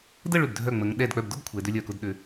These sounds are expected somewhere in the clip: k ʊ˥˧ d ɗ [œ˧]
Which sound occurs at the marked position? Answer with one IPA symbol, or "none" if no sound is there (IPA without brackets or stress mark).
ø˧